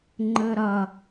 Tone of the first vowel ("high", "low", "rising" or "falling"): high